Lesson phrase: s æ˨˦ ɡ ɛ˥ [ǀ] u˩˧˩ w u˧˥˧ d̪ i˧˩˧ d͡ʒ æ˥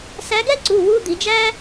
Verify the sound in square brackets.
correct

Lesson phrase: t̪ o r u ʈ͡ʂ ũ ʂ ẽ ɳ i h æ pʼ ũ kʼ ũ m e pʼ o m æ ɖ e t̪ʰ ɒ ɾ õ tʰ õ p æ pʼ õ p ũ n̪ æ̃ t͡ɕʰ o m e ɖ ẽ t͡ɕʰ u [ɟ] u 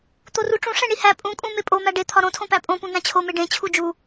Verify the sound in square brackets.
incorrect: d͡ʒ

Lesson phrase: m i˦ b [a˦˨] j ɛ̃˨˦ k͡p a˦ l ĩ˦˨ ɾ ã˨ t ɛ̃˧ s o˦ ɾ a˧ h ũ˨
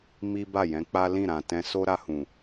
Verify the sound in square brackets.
correct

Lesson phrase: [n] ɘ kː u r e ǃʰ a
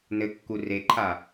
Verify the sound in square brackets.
correct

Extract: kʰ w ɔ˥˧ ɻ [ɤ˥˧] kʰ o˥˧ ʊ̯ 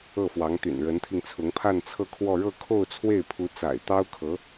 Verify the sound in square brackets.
correct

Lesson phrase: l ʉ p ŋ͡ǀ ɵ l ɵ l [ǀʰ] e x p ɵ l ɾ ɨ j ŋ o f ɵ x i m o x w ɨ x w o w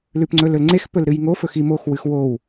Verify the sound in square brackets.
incorrect: ŋ͡ǀ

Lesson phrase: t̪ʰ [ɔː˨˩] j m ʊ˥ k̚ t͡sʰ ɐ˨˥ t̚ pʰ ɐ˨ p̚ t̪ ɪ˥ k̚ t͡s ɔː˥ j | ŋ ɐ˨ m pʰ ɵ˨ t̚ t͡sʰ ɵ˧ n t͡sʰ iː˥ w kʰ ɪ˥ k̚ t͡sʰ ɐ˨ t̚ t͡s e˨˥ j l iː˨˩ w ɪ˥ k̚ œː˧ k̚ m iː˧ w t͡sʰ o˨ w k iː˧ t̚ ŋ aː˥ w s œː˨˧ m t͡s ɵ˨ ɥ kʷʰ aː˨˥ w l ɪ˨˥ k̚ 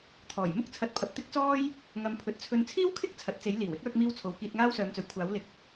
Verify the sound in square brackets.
correct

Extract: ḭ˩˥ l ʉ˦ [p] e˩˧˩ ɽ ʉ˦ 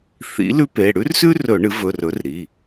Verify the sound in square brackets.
correct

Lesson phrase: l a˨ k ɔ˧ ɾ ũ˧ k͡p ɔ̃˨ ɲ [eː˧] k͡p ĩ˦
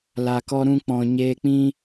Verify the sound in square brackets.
correct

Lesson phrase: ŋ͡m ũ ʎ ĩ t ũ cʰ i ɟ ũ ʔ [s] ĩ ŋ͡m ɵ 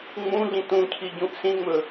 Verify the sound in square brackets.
correct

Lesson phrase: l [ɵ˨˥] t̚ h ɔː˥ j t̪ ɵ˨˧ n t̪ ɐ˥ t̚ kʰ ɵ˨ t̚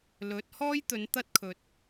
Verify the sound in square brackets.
correct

